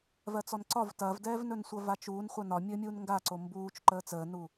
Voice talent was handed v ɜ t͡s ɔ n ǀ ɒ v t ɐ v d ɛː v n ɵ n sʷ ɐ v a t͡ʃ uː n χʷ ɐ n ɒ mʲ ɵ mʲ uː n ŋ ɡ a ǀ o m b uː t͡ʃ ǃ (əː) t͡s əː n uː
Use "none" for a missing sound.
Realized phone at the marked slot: əː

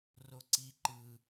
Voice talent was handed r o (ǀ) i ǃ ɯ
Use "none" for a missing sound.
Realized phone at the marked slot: ǀ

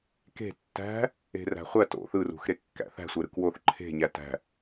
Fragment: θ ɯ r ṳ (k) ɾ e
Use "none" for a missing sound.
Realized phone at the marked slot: x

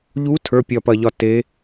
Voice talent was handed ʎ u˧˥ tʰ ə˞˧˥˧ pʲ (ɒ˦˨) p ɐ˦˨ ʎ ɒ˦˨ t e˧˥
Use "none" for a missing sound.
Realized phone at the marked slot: ɒ˦˨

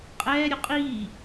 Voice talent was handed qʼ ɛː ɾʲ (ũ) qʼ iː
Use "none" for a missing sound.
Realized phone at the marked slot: u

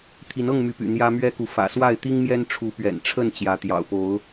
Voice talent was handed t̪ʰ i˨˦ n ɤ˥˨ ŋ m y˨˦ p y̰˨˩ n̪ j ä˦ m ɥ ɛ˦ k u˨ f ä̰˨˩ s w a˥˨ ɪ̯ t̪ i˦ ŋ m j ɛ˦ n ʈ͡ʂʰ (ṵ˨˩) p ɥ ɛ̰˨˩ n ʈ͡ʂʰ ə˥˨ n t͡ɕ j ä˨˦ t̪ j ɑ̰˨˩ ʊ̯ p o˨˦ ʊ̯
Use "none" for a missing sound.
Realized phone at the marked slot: u˨˦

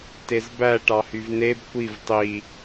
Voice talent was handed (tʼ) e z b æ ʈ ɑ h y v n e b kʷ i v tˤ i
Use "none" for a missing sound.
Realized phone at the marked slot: t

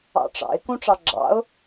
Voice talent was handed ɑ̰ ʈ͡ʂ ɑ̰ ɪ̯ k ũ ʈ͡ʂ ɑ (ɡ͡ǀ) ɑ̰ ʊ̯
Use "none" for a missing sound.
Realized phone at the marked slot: ɡ͡ǁ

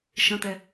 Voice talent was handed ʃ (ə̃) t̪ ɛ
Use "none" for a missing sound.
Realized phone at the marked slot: ə̃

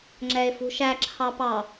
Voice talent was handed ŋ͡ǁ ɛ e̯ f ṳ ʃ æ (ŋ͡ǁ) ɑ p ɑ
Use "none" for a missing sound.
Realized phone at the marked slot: ǁʰ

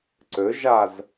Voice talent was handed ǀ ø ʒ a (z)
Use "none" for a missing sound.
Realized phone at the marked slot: z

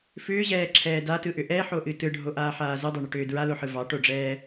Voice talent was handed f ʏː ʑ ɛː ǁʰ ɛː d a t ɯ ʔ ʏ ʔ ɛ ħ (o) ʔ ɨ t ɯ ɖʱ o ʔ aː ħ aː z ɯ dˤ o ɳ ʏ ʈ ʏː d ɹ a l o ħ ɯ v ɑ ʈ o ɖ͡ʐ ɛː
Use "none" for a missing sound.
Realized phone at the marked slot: o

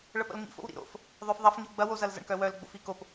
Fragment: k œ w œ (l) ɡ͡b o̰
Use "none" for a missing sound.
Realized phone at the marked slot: l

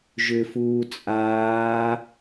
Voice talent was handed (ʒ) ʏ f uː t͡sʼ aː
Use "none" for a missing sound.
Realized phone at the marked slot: ʒ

